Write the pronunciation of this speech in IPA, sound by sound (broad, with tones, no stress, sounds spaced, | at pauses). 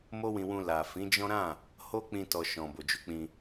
m o˦ w ĩ˧ w ũ˧ l a˨ f ĩ˨˦ d͡ʒ ɔ̃˦ ɾ ã˦˨ | h o˦ k͡p ĩ˧ t ɔ˨ ʃ ɔ̃˨ b o˨ d͡ʒ u˨˦ k͡p ĩ˧